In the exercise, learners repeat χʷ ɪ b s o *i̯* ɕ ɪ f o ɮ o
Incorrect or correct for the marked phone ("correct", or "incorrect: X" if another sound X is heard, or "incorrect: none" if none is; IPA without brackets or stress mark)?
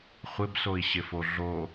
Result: correct